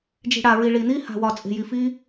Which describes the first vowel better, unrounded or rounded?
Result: unrounded